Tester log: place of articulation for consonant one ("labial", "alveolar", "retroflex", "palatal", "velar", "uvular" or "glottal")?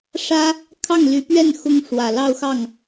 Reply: retroflex